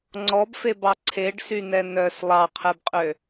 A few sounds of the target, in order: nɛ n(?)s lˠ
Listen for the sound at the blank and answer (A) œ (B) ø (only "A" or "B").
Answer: A